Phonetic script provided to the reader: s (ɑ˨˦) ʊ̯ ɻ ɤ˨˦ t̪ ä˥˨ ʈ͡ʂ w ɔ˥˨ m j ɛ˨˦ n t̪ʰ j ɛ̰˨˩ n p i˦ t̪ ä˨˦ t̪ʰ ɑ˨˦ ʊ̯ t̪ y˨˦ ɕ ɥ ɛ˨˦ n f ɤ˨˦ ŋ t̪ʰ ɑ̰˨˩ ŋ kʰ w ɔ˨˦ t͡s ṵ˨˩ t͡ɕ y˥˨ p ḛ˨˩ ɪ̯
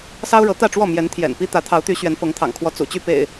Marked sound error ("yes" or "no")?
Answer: yes